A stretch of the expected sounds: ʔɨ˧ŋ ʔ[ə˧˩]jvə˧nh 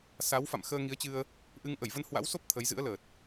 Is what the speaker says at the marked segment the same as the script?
yes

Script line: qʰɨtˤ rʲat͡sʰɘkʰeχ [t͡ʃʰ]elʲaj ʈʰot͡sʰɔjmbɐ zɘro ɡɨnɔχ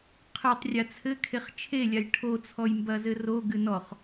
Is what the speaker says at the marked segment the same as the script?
yes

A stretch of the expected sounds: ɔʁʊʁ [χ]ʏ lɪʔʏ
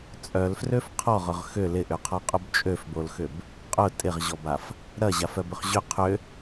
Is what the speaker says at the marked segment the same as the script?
no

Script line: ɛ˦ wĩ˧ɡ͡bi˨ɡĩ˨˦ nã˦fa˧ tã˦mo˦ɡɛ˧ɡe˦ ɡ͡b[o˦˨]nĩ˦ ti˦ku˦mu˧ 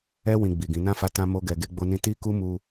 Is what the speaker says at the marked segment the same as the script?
no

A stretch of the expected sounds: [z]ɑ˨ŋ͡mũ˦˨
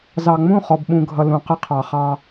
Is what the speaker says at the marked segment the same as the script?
yes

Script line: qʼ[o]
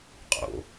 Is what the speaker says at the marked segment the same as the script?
no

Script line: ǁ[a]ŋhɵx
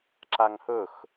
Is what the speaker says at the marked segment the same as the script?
yes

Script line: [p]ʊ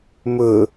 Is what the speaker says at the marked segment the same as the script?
no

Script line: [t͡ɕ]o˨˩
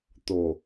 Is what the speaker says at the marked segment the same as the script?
no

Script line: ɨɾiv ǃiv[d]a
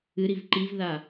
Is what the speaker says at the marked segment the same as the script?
no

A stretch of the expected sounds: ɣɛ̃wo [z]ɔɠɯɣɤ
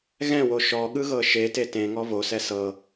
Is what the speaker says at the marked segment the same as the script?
no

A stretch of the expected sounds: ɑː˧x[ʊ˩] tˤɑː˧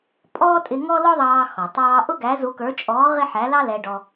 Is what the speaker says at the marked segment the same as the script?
no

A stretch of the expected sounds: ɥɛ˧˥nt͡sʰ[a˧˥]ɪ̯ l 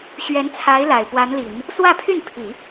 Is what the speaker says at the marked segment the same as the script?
yes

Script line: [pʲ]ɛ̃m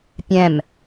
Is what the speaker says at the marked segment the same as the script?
yes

